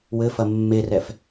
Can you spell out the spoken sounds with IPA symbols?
w ɘ f ɐ mː e r ɛ f

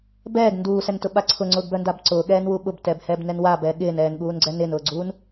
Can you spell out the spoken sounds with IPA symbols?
b ɛː ɡ n d uː s ɛ n t ʊ ɓ a ǀʰ ʊ ŋ͡ǀ ʊː ɡ b œ n d a b ǀ ʊː ɠ ɛː n w u ɓ ʊ b t ɛ b h ɛː b n ɛ n w a b ɛː ɠ ɪː n ɛː n ɠ uː n ɡ͡ǀ ɛ n ɪː n ʊː ɡ͡ǀ uː n

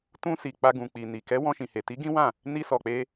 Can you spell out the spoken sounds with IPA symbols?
t ũ˧ s i˨ k͡p a˧ ɡ ũ˨ k͡p i˨ n i˨ k ɛ˨˦ w ɔ̃˧ ʃ ĩ˨ h e˨ t i˨˦ ɡ ĩ˦ w ã˦˨ | n i˧ s ɔ˨ k͡p e˧

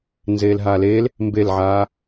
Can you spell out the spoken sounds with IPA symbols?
n z eː l ɦ a l eː l | m b e l ʕ aː

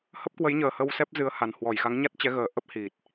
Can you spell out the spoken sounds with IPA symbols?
h ə˦˥ p̚ k w ə˨˦ j ɲ əː˨˩ h ə˧ w s ɛ˦˥ p̚ z ɨ˨˦ ə̯ h a˨˩ n h w ɔ˧˩ j x a˨˦ ŋ ɲ a˦˥ t̚ t͡ɕ ɛ˨˦ ɣ əː˨˩ ʔ ə˦˥ p̚ h i˨˩ t̚

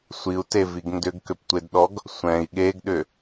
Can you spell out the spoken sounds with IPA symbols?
sʷ i u̯ t e v i ɡ n d ʏ ɡ k ʏ p tʷ e d ɗ ɔ ɡ | sʷ ɛ̃ i̯ ɠ e ɡ ɗ ʏ

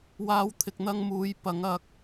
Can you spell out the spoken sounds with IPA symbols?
w aː˥ w t̪ʰ ɪ˧ k̚ n̪ ɐ˥ ŋ m uː˨˥ j p ɐ˨˥ ŋ ɐ˧ k̚

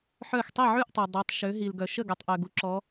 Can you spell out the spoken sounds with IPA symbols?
ħ œ˥˩ x tˤ i˥˩ ʕ y˥˩ ʔ tˤ œ˩ dˤ i˩˧ tˤ ʃ ø˩˧ ɦ i˩ l ɡ œ˩ ʃ ə˥˩ ɡ ɛ˩ tˤ ʔ ø˩ ɡ u˩ ǁ ɔ˩˧

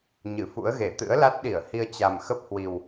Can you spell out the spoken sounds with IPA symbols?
ɲ ɨ˧˩ f ṵ˧˥ ə̯ ɣ e˧˩ t̪ ɨ̰˧˥ ə̯ l a˦˥ t̚ ɗ i˧˩ ə̯ h i˧ ə̯ t͡ɕ a˨˩ m x ə˦˥ p̚ h w i˨˩ w

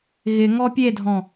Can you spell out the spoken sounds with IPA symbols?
ɣ ɪ ŋ ɔ pʲ e dʱ ɔ̃

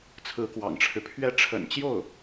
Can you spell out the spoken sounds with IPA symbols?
t͡sʰ ɹ̩˧˥ k w ɑ̰˨˩ ŋ ʈ͡ʂʰ ɻ̩˦ pʰ ɥ ɛ˥˩ ʈ͡ʂʰ ə̰˨˩ n t͡ɕ j o˥˩ ʊ̯

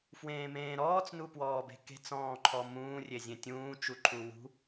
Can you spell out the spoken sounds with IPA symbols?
f w ẽː m ẽː ɾ ɔː t͡s n u p w ɔː b e̤ k e̤ t͡s ɔ̃ː ǃʰ ɔ m ũː rʲ e zʲ ẽ tʲ ũː t͡ʃ u ǃʰ u w ṳ

